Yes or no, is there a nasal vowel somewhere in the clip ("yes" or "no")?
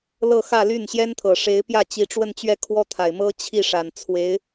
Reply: no